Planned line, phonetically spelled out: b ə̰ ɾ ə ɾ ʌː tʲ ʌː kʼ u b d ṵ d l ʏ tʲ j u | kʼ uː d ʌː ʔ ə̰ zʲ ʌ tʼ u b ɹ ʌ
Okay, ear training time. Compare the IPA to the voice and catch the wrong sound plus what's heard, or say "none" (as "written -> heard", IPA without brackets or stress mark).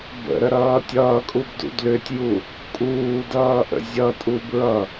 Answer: none